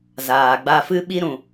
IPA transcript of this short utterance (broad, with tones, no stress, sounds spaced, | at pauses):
z aː˨ ɡ͡b a˧ f ɨ˦ ɓ i˦ ɾ ũ˨